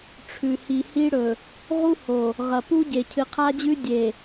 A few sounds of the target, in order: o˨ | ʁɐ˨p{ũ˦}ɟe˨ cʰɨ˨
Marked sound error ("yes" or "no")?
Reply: yes